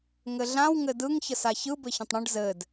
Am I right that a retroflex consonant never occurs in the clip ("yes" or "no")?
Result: no